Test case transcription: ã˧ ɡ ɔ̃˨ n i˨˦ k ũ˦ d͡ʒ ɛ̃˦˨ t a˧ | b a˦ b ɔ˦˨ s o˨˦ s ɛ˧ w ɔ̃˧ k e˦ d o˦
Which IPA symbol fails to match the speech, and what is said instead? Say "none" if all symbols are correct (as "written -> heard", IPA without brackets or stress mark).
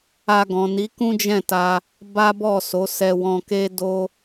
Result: ã˧ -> a˧